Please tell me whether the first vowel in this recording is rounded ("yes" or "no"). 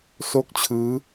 yes